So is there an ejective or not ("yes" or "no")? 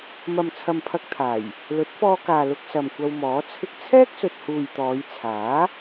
no